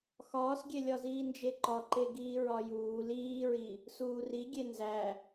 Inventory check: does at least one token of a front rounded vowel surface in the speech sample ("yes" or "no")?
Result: no